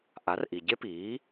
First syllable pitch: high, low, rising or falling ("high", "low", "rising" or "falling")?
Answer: rising